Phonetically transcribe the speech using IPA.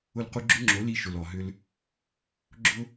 ʊ˧ l q u˧ ɡ͡ǁ ʊ˦ ŋ͡ǁ o˨˦ l i˧ ʃ ʊ˨ l ɔ˨ ɦ ʏ˧ l | ɡ͡ǁ ʊ˦

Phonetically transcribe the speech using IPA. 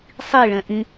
sˤ i ɭ ɛ̃ ʔ ĩ

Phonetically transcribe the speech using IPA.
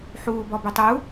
ħ uː b ɔ b ʏ tˤ u

